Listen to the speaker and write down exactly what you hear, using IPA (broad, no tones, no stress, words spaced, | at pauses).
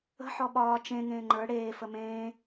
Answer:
ə̤ ħɔɓɒː t͡ʃẽ ŋẽːŋ͡ǃə˞ ɽeː fəmẽː